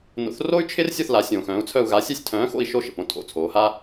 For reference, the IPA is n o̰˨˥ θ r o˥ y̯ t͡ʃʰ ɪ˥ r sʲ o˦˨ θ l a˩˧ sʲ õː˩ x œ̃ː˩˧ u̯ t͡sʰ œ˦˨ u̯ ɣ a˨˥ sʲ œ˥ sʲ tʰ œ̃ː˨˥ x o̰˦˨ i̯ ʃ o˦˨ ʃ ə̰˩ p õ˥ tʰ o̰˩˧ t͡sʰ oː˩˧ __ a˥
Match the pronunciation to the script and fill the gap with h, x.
h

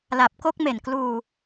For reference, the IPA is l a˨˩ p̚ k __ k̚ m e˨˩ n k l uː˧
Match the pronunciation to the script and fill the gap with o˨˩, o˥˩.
o˥˩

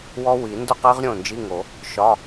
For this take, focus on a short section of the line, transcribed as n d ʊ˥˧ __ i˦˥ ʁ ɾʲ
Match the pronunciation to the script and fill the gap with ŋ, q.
q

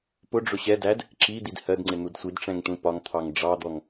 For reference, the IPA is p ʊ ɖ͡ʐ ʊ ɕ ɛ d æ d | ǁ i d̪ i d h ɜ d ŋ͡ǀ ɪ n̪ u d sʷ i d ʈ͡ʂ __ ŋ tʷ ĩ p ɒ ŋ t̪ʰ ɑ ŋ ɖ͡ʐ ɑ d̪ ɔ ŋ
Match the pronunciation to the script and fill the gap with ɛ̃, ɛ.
ɛ̃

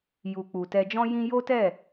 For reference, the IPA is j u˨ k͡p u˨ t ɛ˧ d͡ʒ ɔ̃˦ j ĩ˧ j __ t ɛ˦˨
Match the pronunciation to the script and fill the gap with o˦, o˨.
o˦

